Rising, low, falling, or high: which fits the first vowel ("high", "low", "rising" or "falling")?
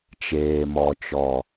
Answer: low